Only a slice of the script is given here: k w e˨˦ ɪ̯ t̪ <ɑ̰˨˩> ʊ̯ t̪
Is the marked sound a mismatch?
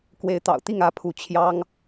no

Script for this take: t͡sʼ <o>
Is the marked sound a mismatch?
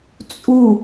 yes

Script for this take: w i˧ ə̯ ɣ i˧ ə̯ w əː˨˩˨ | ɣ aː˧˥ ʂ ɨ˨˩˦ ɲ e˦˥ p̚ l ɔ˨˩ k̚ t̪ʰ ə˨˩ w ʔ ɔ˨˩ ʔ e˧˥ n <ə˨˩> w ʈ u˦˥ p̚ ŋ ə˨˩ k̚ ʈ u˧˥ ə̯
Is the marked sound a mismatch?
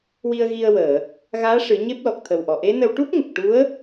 yes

